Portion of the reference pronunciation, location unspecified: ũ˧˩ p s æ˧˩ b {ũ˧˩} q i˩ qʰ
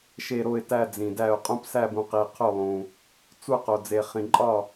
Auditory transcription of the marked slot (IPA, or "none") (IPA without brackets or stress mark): ũ˩